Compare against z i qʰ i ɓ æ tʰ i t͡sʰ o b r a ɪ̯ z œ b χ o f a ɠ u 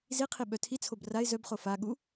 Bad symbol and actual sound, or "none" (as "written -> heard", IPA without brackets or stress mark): æ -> œ